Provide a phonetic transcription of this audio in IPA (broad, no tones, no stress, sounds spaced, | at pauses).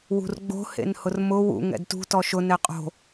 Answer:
w ṳ r ɡ͡b o̤ h ḛ n h ʊ r m ʊ w ṵ ŋ ɛ̰ d t ṳ t ɔ ʃ ʊ n ɛ qʼ o̤